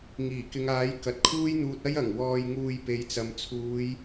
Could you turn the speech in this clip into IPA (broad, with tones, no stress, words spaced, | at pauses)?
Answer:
ŋiː˨˩kɪ˨˧ŋaː˨˥j kɐ˨t̚kʰuː˥jn̪uː˧t̚ɐ˥j ɐ˨˩ŋ wɔː˧jŋuː˧j pe˨jt͡sɐ˨mt͡sʰuː˨˧j